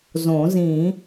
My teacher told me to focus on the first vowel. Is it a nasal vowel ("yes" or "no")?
yes